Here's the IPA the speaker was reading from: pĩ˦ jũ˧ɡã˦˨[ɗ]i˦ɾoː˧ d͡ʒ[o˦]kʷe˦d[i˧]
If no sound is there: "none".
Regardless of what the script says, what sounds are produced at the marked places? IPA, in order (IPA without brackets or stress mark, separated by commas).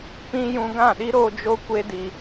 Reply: ɗ, o˦, i˧